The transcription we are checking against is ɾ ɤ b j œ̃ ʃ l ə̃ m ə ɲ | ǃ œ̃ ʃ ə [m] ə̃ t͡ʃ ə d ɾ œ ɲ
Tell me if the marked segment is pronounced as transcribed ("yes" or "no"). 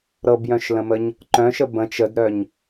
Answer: no